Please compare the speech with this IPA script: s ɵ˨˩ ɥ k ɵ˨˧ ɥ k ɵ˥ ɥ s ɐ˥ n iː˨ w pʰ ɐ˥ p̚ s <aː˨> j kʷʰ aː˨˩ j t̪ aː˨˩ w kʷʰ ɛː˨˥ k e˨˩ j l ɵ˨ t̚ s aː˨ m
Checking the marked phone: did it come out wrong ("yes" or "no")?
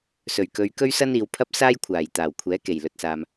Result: yes